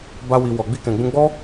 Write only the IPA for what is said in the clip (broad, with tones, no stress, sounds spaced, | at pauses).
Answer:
b a˧ w i˨ w ɔ˨ ɡ͡b i˧ k ɛ̃˨ ɡ͡b ũ˧ ɡ͡b ɔ˦